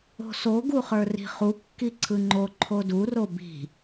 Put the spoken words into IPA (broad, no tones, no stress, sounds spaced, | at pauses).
o̤ s o ɡ u χ ə˞ r i̤ χ u kː i ǀʰ ɯ ŋ͡ǃ o ǃʰ o d u r o b i̤